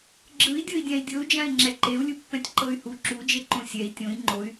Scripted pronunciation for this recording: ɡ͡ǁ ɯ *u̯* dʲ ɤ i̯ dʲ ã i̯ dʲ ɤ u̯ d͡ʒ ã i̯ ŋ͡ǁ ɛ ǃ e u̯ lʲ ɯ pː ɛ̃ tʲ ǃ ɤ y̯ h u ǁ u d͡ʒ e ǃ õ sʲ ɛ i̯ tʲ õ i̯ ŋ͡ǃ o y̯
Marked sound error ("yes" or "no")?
yes